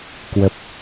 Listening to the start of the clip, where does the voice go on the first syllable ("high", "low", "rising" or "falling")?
low